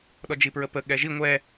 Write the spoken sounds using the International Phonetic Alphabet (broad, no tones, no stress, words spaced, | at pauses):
ɗɔd͡ʒipɹəpə ɠɛʒi ŋʷɛ